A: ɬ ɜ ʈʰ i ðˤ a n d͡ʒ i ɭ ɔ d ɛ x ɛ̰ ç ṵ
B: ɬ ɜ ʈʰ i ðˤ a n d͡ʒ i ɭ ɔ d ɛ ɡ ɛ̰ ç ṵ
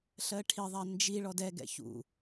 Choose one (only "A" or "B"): B